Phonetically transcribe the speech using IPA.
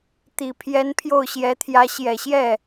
t̪i˨˩pʰjɛ˧˥n pʰjo˥˩ʊ̯ɕjɛ˧˥t̪ʰjä˧˥ ɕjɛ˨˩ɕjɛ˥˩

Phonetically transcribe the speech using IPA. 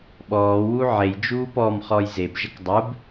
ɓɔːwu ʕejd͡ʒuː pɔmχɔj zebʒək dˤub

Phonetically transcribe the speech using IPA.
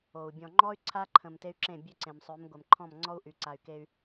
o˨u̯ bʲɔ̃˨ŋ͡ǃɔ˦y̯ ǀʰa˦ǃʰə̃˨m te˦y̯ǁẽ˦˨ bʲø˦ǀẽ˨msˤø˨˦m ɡʷɛ˨mǃʰɔ̃˦˨mŋ͡ǀɔ˦u̯ ʔy˨ǀa˨y̯ke˦y̯

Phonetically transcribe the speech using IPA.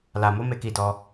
la˨mo˨˦ me˦˨ki˧dɔ˧

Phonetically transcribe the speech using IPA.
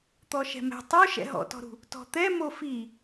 t̪ɔʃɛ̤mɛ̤ tˤo ʃɛ̰ɦɔ̰tɔ̤ɾṳ | tɔ̤t̪ɛmo fi

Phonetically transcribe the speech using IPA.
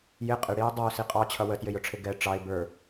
jɪ qʼɪɽiː dˤʌʊ̯ siqʼɑt͡ɕʰʌ wətjɪjʊʈ͡ʂʰɪ ɡɛ ʈ͡ʂɑɪ̯ bə˞

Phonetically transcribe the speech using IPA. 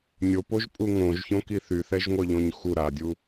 nʲopoʒpʼu ŋõʒçõki θyθɛʒŋʷœʎõɲ xu ɾadʲu

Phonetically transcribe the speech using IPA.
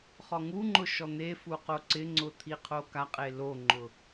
χɔŋuŋ͡ǃʊ ʃɔn̪efu qoǀɪŋ͡ǀʊ t̪ʰiqʰokaqʼe loŋ͡ǃʊ

